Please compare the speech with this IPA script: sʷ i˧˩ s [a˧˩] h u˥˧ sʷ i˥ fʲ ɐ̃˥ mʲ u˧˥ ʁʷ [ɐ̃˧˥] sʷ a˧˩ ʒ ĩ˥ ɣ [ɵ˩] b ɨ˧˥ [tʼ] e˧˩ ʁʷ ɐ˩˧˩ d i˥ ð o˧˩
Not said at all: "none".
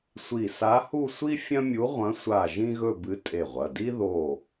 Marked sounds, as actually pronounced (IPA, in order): a˧˥, ɐ̃˧˥, ɵ˥˧, tʼ

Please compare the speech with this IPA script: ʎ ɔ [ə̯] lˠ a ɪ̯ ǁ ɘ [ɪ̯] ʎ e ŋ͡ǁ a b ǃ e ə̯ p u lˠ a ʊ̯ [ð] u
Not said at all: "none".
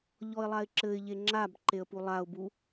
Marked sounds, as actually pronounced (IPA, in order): ɪ̯, ɪ̯, b

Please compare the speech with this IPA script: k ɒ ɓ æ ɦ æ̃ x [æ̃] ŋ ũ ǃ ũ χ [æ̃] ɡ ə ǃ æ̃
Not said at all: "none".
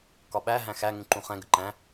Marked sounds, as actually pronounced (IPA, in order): æ, ɛ̃

